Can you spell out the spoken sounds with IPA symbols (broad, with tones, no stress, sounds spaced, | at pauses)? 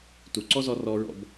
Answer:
t u˨ ǀ ɔ˦ z ɔ˧ r ɔ˧ ɹ ɔ̰˧ b